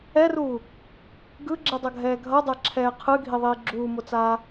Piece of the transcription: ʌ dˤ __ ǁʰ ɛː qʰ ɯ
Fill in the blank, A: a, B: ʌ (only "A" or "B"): A